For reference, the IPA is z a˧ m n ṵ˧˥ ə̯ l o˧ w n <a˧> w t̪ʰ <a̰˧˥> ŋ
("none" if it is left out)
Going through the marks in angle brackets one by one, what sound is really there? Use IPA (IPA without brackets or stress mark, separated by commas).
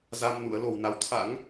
a˨˦, a̰˧˥